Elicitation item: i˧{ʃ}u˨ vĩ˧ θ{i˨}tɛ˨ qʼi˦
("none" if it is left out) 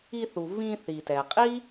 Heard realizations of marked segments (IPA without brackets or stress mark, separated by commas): θ, i˨